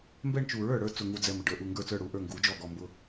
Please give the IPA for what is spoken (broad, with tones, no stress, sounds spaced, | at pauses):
m b ɛ˥˧ ɳ t͡ʃ u˨˩˦ ɹ ə˞˨˩ ɽ ə˞˥˩ t͡s ʊ˨˩ ŋ u˨˩ d͡z ɛ˨˩ m ə˨˩ ɖ ə˞˨˩˦ ʔ u˨˩ ŋ ɡ ə˞˥˩ t͡s ə˞˥˩ ɽ u˥˩ ʔ ə˞˥˩ ŋ ɡ u˨˩˦ d͡ʒ ɔ˥˩ ɡ ɔ˥˩ m b ʊ˥˧